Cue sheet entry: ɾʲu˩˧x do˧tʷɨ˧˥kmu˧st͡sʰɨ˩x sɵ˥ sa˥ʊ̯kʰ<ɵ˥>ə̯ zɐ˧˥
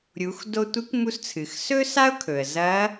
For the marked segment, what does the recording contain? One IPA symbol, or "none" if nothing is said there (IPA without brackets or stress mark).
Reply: ɵ˩